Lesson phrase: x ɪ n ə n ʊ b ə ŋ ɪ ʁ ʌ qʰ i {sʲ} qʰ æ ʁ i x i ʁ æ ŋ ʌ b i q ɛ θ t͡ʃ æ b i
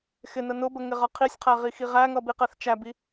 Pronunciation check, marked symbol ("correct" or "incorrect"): correct